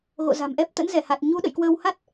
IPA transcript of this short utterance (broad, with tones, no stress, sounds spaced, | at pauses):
ɣ o̰˧˨ z a̤˨˩ m ʔ ɛ˦˥ p̚ t̪ ə̰˧˥ n z ɛ˧˩ h a˨˩ t̚ ɲ u˨˦ ɗ ə̰˧˨ j k w əː˧ w h a˦˥ t̚